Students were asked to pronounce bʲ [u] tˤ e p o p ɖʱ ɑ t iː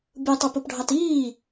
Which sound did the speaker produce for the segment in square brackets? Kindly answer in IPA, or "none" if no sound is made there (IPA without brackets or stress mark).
ɯ